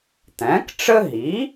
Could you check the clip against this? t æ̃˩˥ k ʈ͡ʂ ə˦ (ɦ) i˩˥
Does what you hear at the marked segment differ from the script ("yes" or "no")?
no